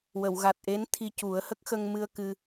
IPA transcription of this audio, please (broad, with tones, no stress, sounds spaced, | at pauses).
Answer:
w ə˨˩˨ w ɣ a˨˩ t̚ ʔ e˧˥ n t̪ʰ i˧ c u˨˩˦ ə̯ h ə˦˥ k̚ x ə˧ ŋ m ɨ˧ ə̯ k ɨ˧